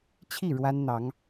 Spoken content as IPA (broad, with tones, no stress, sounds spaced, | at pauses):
t͡ɕʰ i˥˩ ɻ w a˥ n n̪ ɑ˧˥ ŋ